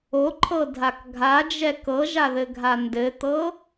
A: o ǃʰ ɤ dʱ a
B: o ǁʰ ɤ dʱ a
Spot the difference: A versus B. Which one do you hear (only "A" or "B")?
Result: A